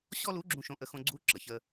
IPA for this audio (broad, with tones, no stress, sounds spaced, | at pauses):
ɕ ɔ˥ l u˧˥ ɡ͡ǁ ũ˧ ʃ õ˧ ʔ ə˧ x õ˧ ɡ͡ǀ u˧˥ ǁ ə˩ ç ə˧